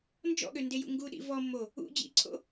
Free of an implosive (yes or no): no